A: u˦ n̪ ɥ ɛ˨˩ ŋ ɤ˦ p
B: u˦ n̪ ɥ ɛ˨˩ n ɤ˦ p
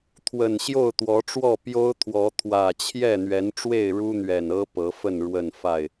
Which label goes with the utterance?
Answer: B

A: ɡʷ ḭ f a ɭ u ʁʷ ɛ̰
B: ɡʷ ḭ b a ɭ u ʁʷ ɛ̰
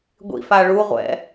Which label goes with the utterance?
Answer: A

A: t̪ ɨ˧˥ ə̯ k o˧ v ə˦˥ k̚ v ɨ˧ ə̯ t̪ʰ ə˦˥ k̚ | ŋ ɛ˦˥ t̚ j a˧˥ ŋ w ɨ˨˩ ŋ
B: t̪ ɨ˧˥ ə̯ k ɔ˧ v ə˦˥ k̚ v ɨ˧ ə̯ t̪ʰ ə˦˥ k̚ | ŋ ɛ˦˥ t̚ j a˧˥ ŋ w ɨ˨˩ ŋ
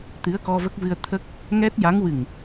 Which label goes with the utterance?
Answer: B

